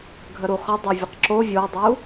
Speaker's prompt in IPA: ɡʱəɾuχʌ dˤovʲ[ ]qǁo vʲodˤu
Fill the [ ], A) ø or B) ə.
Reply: B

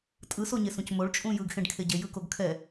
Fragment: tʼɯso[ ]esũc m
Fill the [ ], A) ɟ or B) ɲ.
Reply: B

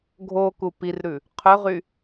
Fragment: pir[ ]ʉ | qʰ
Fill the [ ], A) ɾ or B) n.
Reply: A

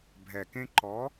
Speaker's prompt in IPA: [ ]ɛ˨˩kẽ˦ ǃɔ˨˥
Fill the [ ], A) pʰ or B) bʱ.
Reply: B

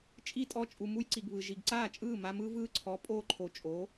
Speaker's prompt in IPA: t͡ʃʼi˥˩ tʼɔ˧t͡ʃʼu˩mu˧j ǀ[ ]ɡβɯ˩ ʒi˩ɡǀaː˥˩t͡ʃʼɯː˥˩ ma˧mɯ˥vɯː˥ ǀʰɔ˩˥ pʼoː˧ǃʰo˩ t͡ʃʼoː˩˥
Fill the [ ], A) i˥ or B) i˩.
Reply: B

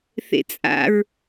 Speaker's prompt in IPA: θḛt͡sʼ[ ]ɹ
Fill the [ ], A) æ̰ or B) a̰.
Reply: B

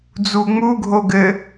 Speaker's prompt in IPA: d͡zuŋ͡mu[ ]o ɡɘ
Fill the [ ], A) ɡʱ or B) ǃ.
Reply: A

